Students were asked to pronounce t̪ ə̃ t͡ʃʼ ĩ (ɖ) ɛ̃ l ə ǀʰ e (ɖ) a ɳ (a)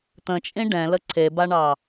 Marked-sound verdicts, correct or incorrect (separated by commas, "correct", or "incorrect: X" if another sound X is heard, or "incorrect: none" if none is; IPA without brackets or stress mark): correct, incorrect: b, incorrect: ɑ